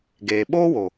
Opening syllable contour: low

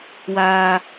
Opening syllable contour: high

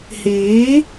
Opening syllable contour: rising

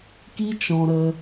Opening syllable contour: high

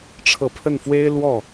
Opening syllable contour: low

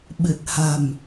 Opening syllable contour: low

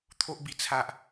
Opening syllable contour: high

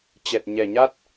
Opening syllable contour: low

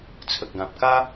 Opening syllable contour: low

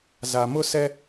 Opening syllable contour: low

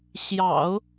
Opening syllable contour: low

